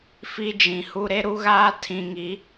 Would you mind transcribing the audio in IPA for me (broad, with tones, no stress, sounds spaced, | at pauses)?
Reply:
f i˦ d͡ʒ ĩ˨ h u˦ ɾ e˦ ɾ u˦ ɣ aː˦ tʰ ĩ˨ ŋ i˨˦